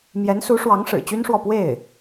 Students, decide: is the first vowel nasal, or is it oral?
oral